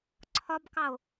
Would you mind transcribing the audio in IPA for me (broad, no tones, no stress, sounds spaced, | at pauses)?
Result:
ǀʰ ɒ b k ɑ o̯